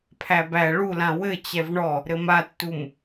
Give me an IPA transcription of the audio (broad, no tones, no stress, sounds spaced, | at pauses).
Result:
pʰ æ b æ ɭ u l ã w ɘ t͡ɕ ɛ v ɳ ɔ | ɾ ɘ m a tː u m